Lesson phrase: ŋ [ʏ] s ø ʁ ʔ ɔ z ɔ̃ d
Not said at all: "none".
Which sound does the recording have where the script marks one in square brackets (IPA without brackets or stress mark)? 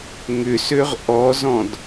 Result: ʏ